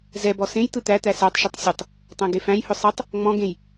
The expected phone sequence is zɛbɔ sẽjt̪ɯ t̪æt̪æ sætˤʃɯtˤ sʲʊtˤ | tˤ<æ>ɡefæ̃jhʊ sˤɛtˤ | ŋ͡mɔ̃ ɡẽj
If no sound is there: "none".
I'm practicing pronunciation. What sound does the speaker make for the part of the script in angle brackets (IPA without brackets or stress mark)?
æ̃